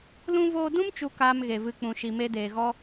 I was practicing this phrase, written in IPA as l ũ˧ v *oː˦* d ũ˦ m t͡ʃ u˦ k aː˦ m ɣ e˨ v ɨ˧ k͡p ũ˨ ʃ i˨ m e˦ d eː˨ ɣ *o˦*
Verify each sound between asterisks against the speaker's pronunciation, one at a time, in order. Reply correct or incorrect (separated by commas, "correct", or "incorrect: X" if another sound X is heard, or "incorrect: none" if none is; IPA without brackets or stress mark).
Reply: incorrect: oː˧, incorrect: ɔ˦